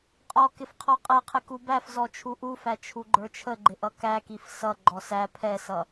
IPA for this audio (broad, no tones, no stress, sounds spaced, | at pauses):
qʼ ɔ k ɪ f qʰ ɔ qʼ ɛ qʰ ɪ k u b æ f z ɔ t͡ʃʰ u ʔ u f æ t͡ʃʰ u ɡ͡ǃ ə˞ t͡ʃʰ ə ɡ͡ǃ ɪ ʔ ʌ k æ k i f s ʌ ɡ͡ǃ ɔ s æ pʰ ɛ s ʌ